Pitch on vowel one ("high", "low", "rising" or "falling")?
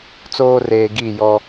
high